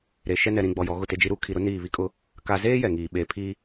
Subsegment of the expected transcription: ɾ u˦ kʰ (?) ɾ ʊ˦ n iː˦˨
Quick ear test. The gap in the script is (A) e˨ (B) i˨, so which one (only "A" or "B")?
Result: B